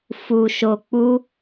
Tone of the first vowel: low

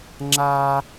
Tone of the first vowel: high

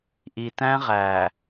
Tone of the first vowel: low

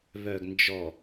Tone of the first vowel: low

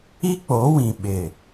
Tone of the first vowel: high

